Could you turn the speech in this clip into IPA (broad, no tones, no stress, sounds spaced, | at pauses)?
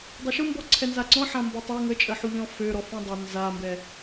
dˤ ʊ ʃ ʊ m b ɔ ǀʰ ɛ n z a ǀ ɔ̃ ħ ã m b ɔ tˤ a ŋ ə t͡ʃʼ ə ħ u ʎ ɔ̃ f ø ɾ ɔ f ɔ̃ dˤ ʊ n z a m b ɛ